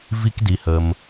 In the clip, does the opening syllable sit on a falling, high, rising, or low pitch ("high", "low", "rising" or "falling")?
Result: high